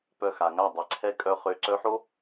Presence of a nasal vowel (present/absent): absent